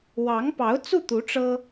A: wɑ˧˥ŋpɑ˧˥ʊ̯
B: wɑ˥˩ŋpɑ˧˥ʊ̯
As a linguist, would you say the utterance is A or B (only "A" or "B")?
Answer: A